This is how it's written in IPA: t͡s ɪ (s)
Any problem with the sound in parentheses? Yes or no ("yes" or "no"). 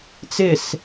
no